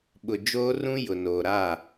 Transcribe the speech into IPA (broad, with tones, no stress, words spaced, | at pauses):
ɓʊ˨ d͡ʒoː˦ rũ˦ jʊ˨ noː˨ɾaː˦˨